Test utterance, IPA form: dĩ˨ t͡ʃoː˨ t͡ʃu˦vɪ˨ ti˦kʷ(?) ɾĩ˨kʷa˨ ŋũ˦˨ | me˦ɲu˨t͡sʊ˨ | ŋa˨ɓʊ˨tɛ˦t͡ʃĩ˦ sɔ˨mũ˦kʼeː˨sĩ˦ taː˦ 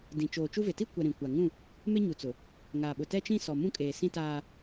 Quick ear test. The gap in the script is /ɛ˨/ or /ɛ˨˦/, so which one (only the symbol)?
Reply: ɛ˨